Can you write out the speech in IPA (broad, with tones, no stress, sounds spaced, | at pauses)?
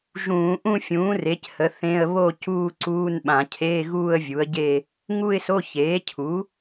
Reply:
ʒ ũː˧˩˧ ʔ ũ˥˧ fʲ ũː˩˥ r e˩˥ c h ə˩˥ θ ẽ˧˥˧ ə̯ β o˥˧ c uː˥˧ ǀ uː˧˥˧ n ɓ ã˧˩˧ cʰ eː˧˥˧ ɣ uː˥˧ ə̯ vʲ u˩˥ ə̯ ɟ e˥˧ | ŋ u˥˧ ɪ̯ s o˧˥˧ ç eː˩˥ cʰ u˩˥